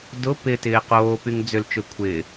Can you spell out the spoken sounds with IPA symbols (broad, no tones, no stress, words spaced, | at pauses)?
dʊ pɪtɪː qoːpyŋ d͡zʏlt͡ʃø kʷʰɪː